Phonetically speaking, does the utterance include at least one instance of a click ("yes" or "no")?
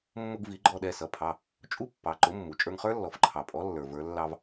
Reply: yes